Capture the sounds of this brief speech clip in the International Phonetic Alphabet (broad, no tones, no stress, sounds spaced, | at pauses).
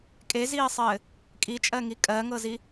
kʼ e z iː sˤ ɘː | kʼ i t͡ʃʼ ɜ ŋ i kʼ ɜ ŋ ɤ z i